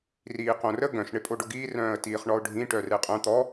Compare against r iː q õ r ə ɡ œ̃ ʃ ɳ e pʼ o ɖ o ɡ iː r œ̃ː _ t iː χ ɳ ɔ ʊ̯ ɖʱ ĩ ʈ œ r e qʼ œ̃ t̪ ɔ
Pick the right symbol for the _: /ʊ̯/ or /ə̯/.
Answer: ə̯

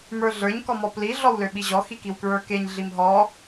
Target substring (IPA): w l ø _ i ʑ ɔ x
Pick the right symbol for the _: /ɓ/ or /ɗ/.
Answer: ɓ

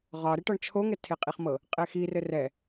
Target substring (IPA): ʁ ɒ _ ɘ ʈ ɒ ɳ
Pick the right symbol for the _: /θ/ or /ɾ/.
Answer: ɾ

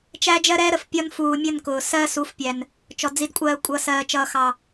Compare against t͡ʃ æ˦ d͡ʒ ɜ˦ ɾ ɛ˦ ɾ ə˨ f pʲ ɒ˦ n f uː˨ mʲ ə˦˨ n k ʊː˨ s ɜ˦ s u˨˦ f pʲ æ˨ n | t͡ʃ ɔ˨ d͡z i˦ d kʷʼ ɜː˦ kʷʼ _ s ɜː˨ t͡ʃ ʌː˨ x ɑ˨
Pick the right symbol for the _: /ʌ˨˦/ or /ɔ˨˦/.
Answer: ʌ˨˦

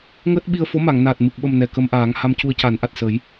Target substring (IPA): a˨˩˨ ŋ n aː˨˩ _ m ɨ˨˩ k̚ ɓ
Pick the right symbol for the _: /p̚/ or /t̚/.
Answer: t̚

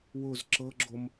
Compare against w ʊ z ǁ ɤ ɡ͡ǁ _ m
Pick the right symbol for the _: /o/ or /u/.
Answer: o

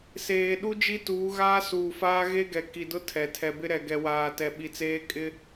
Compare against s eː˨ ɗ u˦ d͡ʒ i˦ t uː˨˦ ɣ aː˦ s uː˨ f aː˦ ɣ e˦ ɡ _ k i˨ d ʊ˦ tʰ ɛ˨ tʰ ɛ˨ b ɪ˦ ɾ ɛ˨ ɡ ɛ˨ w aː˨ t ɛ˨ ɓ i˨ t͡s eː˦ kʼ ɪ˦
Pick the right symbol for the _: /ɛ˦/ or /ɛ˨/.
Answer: ɛ˨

